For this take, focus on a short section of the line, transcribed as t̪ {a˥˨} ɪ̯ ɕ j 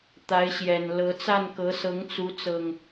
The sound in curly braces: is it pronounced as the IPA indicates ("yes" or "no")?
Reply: no